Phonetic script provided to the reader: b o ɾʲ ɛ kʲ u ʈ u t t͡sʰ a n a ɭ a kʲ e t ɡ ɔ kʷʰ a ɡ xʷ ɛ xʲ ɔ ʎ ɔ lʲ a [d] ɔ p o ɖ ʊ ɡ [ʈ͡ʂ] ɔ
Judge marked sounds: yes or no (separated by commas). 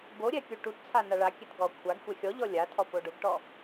no, no